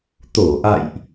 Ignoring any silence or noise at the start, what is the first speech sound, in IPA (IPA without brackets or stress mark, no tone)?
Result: t̪